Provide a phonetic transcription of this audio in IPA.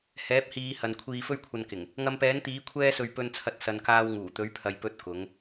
h ɛː˨˥ p̚ h iː˨˧ h ɐ˨ n kʷʰ iː˧ f ɵ˥ ɥ kʷʰ ɐ˧ n k ɪ˨˩ ŋ | ŋ ɐ˧ m p ɛː˨˥ n t̪ iː˨˥ kʷʰ ɛː˥ s ɵ˧ ɥ p ɵ˧ n t͡sʰ ɐ˧ t̚ s ɐ˨ n k aː˧ w ŋ uː˨˩ t̪ ɵ˨˥ ɥ pʰ ɐ˨ j p ɵ˧ t̚ k ʊ˨˥ ŋ

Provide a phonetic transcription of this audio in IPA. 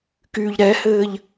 k yː ʎ ɾ ɛ h ɘː ʎ

